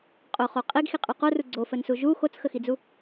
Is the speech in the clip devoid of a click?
no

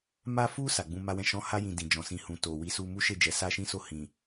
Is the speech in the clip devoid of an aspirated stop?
yes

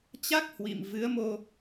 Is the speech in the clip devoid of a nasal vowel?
yes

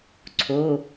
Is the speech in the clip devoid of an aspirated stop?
no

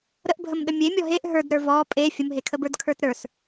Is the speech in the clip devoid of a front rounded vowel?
yes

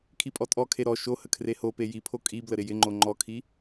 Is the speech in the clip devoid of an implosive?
yes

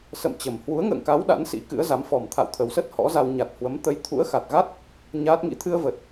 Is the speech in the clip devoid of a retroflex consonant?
yes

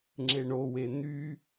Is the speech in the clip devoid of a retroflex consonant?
no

